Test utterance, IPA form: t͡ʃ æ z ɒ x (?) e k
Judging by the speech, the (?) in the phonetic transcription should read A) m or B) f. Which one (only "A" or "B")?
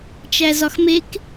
A